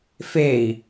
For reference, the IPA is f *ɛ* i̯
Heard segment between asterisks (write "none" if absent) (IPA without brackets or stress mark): e